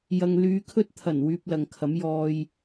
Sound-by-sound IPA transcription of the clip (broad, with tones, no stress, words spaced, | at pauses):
jɐ˨ŋlyː˨˧kʰɵ˥t̚ t̪ʰɐ˨˩n wyː˧p̚lɐ˨ŋkʰɐ˨˥m jɔː˧j